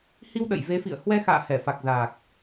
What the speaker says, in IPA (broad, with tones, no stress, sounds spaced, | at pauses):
h i˧ w ɗ ə̰˧˨ j v e˨˦ f ḭ˧˨ ə̯ h w ɛ˧ x a̰ː˧˨ h ɛ˧˩ f a˨˩ k̚ z aː˨˩ k̚